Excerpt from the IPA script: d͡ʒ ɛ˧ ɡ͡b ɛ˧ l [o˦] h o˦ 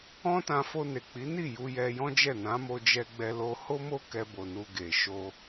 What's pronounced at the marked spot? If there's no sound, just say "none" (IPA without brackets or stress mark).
o˧